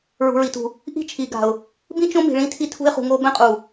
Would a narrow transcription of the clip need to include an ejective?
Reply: yes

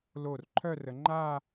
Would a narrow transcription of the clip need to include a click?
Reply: yes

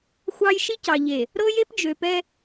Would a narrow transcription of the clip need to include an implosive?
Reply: no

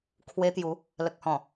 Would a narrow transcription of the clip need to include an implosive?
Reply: no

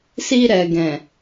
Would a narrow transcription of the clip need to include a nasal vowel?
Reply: yes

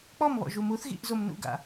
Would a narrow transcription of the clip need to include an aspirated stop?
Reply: no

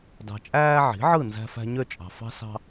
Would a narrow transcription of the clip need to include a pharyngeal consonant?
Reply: yes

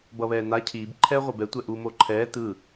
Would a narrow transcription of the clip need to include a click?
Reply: yes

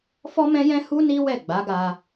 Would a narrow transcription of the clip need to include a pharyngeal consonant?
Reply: no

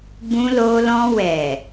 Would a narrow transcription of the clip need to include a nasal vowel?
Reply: yes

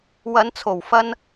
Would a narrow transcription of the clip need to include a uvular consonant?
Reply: no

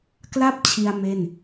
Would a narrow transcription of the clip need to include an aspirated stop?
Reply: yes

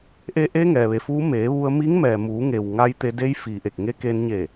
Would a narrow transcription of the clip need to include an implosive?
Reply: no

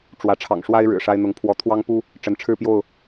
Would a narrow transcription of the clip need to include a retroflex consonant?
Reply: yes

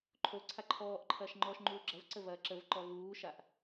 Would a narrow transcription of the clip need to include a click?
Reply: yes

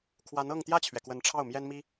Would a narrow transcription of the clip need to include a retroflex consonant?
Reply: yes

